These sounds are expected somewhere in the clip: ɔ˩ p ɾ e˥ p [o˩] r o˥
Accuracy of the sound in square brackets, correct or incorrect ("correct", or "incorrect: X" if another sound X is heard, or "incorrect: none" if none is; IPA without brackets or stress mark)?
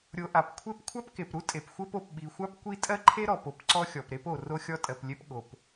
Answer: correct